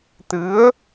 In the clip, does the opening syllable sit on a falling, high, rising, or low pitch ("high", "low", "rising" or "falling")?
rising